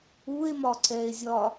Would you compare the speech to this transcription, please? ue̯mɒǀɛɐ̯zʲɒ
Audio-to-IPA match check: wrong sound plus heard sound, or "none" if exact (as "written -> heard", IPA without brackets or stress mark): ɐ̯ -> e̯